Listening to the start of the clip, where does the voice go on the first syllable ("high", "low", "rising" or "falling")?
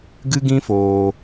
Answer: high